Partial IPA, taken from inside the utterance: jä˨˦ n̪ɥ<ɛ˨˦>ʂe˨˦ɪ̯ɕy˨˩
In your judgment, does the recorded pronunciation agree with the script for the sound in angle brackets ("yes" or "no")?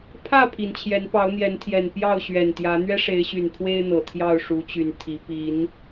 no